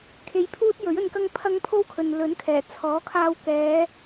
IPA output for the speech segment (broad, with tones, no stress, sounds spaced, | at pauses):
kʰ e˧ j pʰ uː˥ t̚ j ɵ˨˥ ɥ ɵ˧ n k ɐ˥ ŋ pʰ ɐ˥ ŋ pʰ o˥ w kʰ ɵ˨ n l ɵ˨˥ n kʰ ɛː˨˩ t͡sʰ ɔː˨˥ kʰ aː˧ w k ɛː˨˧